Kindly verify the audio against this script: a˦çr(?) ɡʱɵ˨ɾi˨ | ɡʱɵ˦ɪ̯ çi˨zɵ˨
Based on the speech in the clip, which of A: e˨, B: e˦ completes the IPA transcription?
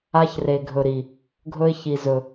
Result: A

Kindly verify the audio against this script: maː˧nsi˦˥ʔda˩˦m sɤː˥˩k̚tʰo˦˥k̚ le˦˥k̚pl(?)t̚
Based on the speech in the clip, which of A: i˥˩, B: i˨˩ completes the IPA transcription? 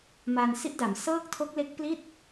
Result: A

